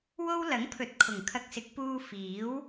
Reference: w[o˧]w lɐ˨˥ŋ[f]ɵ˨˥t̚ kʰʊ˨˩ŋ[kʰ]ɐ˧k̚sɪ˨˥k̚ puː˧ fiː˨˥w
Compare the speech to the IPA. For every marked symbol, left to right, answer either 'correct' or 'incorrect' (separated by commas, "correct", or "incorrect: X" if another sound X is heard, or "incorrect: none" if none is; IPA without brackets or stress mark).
incorrect: o˥, incorrect: pʰ, correct